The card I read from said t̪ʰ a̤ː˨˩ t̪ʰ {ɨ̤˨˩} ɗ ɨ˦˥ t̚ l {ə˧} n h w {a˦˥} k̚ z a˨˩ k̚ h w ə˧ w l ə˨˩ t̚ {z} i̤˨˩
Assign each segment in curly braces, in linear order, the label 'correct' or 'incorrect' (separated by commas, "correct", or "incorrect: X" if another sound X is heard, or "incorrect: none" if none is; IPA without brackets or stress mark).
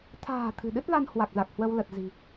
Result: correct, incorrect: a˧, incorrect: a˨˩, correct